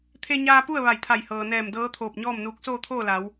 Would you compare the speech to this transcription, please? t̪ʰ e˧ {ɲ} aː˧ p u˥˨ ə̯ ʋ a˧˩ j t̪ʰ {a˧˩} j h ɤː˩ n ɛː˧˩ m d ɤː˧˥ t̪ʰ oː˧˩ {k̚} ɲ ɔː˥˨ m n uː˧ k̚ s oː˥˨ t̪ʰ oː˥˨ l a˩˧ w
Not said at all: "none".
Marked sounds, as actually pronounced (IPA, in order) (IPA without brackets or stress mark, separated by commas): ɲ, a˧˩, p̚